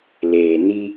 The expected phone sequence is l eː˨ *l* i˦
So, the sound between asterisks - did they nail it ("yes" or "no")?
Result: no